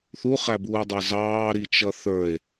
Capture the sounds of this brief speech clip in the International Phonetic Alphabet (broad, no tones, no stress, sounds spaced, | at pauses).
θ u χ æ b uː dˤ ə˞ z ɑː ɾ i t͡ʃ ʌ θ ə˞ e̯